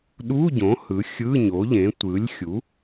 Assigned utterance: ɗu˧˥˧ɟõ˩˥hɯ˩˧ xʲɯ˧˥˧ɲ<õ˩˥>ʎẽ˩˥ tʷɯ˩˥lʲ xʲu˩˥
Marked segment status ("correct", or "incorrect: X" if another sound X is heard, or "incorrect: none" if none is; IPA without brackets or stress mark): incorrect: o˩˥